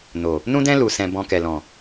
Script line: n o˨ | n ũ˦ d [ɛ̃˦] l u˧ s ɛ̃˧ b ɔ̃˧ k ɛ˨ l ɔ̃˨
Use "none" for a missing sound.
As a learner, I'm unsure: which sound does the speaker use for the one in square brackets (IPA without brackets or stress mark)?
ɛ̃˦